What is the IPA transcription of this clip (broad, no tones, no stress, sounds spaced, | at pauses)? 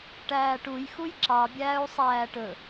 ʈ æː ʈ u j x u j ǁ ɑ bʲ æː u̯ sˤ æː ʈ ɵ